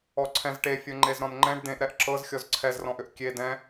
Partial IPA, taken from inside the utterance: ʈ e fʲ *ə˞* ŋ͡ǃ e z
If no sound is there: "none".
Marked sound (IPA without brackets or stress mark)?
ɤ